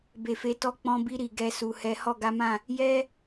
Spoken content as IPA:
b e˨ f e˨˦ t ɔ˦ k͡p ɔ̃˧ b i˧ ɾ i˨ ɡ ɛ˧ s u˨ h ɛ˨˦ h ɔ˦˨ ɡ a˨˦ m ã˦˨ | j ɛ˦

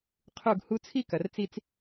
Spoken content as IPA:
qʰ u˦˨ ɡ h u˦ t͡sʰ i˦ k ɐ˨ r t͡s i˦ t͡s

